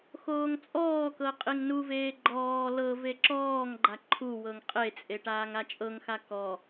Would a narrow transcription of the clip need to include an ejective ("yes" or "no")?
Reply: yes